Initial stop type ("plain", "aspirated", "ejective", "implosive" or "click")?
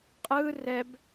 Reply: ejective